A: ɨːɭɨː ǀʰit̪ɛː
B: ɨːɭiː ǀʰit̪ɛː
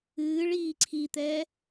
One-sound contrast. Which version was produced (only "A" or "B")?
B